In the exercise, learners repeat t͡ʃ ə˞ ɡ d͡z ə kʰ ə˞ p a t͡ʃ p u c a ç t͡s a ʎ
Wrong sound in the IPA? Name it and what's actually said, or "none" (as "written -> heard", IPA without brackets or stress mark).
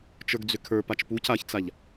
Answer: ə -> ʏ